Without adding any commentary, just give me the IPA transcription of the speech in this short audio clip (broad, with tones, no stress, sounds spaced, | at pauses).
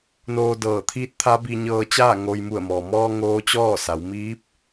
n oː˧ d ɤː˧˩ t̪ʰ iː˧˥ t̚ t̪ʰ a˧˥ b i˧ ɲ ɤː˧ t͡ɕ aː˥˨ ŋ o˧ j m u˧˩ ə̯ m ɔː˩ m ɔː˧ ŋ oː˧˥ t͡ɕ ɔː˥˨ s a˩˧ w m iː˧˥ p̚